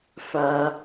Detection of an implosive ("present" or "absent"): absent